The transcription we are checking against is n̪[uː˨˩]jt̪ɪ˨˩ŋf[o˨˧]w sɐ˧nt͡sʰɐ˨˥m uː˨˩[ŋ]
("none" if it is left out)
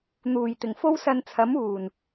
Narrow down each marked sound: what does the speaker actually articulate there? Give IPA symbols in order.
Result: uː˨˩, o˥, n

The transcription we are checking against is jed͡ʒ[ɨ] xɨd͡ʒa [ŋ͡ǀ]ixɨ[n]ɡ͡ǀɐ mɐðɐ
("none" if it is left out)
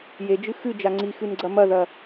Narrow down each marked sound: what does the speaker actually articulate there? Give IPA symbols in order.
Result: ɨ, ŋ͡ǀ, n

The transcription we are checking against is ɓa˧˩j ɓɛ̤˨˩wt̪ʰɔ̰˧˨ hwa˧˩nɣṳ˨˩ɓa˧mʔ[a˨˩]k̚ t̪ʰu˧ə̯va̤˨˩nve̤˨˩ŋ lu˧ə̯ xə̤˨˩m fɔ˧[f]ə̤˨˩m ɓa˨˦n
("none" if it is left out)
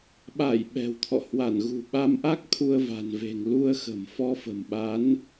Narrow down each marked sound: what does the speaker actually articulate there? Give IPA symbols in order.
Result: a˦˥, f

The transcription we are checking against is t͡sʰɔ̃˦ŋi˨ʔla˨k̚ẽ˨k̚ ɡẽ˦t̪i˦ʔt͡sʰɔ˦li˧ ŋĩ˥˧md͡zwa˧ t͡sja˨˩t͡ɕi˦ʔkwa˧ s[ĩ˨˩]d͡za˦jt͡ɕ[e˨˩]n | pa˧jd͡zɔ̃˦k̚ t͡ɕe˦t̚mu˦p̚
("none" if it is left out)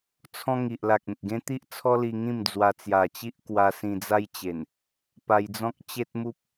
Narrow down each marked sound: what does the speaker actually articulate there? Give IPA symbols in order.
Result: ĩ˧, e˨˩

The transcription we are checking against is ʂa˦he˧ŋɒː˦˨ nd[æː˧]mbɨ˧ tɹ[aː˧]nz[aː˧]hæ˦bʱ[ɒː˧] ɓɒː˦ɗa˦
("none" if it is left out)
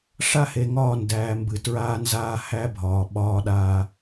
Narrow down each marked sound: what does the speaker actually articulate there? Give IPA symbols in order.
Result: æː˧, aː˦, aː˦, ɒː˧

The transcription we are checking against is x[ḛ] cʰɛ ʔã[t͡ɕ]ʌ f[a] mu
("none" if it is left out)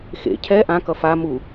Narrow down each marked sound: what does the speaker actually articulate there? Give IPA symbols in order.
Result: ḛ, k, a

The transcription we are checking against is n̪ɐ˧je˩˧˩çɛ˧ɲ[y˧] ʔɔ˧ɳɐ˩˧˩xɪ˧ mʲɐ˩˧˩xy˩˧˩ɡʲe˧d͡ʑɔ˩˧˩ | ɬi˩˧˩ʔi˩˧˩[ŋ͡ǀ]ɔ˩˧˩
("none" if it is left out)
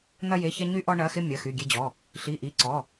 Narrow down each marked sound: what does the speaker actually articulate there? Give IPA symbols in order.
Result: y˧, ǀ

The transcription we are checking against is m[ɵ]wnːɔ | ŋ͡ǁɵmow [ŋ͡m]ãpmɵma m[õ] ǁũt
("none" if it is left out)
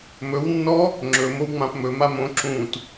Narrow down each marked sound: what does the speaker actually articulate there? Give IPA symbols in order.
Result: ɵ, ŋ͡m, õ

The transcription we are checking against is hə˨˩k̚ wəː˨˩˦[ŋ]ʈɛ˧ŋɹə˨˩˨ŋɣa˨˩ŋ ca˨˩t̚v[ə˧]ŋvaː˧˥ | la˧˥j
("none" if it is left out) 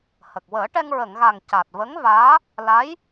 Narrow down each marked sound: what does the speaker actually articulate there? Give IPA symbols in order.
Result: none, ə˧˥

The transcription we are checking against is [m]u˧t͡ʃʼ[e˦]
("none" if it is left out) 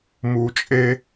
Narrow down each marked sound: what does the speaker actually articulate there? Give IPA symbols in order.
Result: m, e˦

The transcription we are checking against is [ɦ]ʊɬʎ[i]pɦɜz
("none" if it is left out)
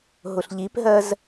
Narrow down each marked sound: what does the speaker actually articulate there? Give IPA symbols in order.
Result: ɦ, i

